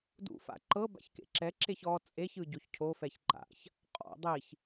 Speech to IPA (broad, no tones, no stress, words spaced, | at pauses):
dṵfa̰ ǃɤ ba̰çkḛǁɛǁeç ɔ t͡sʼeçɯ ɟoçcʰofɛç ǃa̰ç | qʼɔ̰ dˤiç